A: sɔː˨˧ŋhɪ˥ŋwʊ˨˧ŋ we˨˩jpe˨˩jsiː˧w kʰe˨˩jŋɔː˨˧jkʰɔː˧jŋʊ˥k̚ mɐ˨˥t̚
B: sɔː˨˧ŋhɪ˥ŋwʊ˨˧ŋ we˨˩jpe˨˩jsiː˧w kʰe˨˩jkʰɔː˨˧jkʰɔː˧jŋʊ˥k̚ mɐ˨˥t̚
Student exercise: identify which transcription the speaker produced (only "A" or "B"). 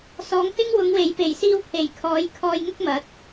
B